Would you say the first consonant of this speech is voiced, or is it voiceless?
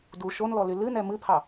voiced